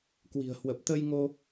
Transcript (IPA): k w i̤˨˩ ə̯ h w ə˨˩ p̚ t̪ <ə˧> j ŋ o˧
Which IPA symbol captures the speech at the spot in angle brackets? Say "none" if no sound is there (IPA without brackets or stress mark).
ə˧